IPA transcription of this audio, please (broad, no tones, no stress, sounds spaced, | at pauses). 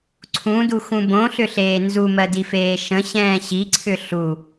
ǀʰ ũ d u x ũ b õ ɬ ʏ ɬ eː n z u m ɜ d i f eː ʃ ə̃ ɕ ɛ̃ː ɕ i ǀʰ ʏ ɬ u